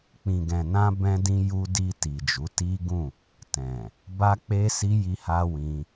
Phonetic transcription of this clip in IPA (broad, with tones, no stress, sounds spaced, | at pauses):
k͡p ĩ˨ ɡ ɛ̃˨ n ã˧ b ɛ̃˦ d ĩ˦ j u˦ d i˧ t i˨ d͡ʒ u˨˦ t i˦ ɡ ũ˦˨ | t ɛ̃˨ | b a˧ k͡p e˧ s i˧ j i˦ h a˦ w ĩ˧